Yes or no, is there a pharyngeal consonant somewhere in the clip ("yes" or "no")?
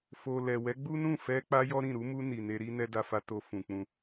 no